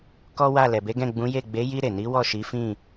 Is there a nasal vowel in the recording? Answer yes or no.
yes